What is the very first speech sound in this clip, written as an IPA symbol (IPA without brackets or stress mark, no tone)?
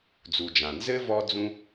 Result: d͡z